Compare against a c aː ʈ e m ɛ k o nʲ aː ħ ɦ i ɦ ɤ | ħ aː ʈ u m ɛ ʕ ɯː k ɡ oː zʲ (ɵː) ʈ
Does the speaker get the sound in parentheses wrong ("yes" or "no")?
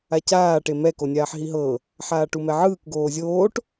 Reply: yes